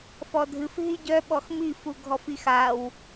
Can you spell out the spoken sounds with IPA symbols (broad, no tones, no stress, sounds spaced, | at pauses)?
f ɔ dʱ ɨ f ɦ i ɟ œ ɓ ɔ x m i f u ɡʱ ɔ f i x a w